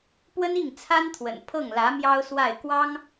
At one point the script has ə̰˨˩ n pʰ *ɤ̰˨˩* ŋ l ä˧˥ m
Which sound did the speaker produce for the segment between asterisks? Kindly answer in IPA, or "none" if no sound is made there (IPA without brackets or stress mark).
ɤ˥˩